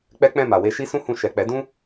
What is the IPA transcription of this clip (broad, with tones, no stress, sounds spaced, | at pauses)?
k͡p ɛ˦ k͡p ɛ̃˦˨ m a˨ w e˧ ʃ i˦ s ũ˦ h ũ˧ ʃ ɛ˨ k͡p ɛ˨˦ d ũ˦